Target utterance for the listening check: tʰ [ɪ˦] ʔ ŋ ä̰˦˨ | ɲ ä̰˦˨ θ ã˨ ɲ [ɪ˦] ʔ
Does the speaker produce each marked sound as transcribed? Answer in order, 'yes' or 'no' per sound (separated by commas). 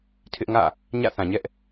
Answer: yes, no